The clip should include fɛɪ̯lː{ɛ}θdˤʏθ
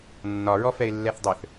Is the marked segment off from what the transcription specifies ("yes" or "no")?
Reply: no